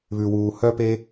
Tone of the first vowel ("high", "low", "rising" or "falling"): low